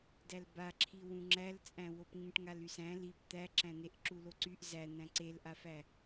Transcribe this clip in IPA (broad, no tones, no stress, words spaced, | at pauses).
dælbaǁʰi wũŋ͡ǁælt͡sʼæ̃wop ŋĩʈŋalysæ̃ lip t̪æǁæ̃n̪eʔ ǁuloǀyʔ zæ n̪æ̃ǀelʔafæ